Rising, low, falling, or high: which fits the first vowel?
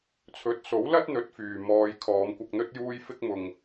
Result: rising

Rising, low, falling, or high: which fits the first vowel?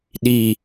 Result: low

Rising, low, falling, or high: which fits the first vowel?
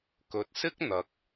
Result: low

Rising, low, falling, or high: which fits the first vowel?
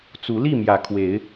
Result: rising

